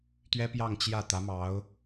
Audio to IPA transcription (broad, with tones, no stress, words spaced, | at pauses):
t̪ɥɛ˥pjɑ˥˧ŋ t͡ɕjä˥˩ t̪ä˧˥mɑ˧˥ʊ̯